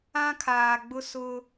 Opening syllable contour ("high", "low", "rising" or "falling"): high